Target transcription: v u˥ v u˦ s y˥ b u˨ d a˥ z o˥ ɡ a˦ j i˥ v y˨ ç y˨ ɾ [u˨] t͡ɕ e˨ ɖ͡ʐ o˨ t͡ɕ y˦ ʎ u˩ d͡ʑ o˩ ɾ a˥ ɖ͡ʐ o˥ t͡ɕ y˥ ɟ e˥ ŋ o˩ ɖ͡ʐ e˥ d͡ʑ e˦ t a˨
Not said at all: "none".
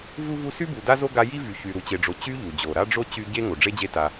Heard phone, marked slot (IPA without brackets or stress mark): u˨